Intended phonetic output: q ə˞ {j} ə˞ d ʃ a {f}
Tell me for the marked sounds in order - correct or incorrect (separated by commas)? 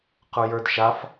correct, correct